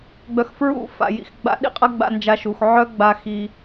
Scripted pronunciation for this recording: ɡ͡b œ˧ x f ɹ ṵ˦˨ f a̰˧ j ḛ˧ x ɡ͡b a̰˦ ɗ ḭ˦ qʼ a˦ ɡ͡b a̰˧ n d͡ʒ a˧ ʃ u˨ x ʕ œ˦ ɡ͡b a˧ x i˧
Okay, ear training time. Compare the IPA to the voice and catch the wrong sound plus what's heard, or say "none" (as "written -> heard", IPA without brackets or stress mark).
ḛ˧ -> ḭ˧